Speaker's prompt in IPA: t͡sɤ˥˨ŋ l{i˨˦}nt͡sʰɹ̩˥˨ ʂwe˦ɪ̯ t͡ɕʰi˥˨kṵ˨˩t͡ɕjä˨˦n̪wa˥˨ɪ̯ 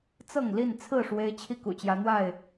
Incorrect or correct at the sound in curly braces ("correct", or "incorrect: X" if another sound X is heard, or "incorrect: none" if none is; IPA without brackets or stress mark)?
incorrect: i˥˨